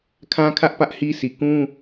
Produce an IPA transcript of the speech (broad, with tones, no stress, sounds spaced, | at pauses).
kʰ ã˦ kʰ ä˦ ʔ p ä˦ ʔ h i˦ s i˨ k ũ˦